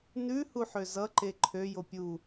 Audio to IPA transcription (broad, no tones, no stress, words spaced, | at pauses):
nʉ huħøzʌ ǃeǃʰø jopʲu